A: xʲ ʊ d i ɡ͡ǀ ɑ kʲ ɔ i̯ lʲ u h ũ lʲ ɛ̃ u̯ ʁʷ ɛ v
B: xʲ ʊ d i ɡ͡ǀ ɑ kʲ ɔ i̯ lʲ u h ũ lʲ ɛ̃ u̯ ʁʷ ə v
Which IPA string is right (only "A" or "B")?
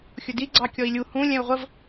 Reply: B